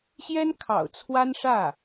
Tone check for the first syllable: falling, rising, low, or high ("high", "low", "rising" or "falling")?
high